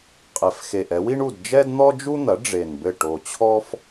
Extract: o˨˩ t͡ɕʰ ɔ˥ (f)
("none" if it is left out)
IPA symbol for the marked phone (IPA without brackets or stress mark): f